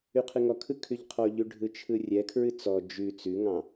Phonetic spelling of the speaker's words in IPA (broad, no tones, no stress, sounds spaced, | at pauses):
ʉ qʰ ɨ ŋ ɔ kʰ ɯ kʰ ʉ ʎ qʰ ɔ ʎ ʉ ɖʱ ɯ t͡ʃʰ ɯ rʲ ɛ kʰ ɹ ɨ t͡s ɔ d͡ʒ ʉ t͡s ʉ ŋ ɑ̃